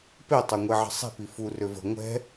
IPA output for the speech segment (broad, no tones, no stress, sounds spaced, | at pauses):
p e tˤ ø ŋʷ e ʕ ə̤ sˤ e̤ p i f u r ø v ə̤ ŋʷ ɛ̤